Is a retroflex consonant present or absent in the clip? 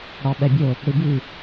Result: present